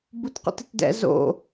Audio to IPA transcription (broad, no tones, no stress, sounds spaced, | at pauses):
b u t q o̰ t ɨ t d ɛ̰ z o̰